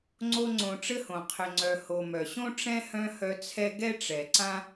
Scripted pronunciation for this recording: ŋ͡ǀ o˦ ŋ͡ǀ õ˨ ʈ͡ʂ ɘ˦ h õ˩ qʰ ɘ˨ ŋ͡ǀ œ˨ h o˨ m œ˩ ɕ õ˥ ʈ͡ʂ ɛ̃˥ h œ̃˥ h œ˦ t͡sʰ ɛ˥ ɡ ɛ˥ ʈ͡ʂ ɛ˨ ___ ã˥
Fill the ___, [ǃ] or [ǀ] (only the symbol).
ǀ